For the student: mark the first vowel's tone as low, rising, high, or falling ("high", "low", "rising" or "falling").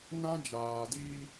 high